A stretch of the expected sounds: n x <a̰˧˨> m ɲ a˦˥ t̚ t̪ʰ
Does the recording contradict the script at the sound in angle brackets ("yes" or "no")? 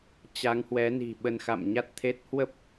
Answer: no